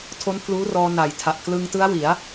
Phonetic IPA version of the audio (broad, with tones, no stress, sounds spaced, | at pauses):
tʰ o˦˥ n pʰ l uː˦˥ r ɔː˧ n a˨˩ j tʰ a˨˩ ʔ k l ɯ˧ ŋ t ɯ˦˥ a̯ w i˩˦ a̯